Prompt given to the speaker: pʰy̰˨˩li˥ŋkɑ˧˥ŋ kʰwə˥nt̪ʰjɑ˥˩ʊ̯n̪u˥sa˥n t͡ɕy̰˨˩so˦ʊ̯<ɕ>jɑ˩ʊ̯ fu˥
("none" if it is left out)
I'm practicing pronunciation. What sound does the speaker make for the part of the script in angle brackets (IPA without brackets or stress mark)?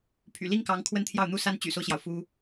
ɕ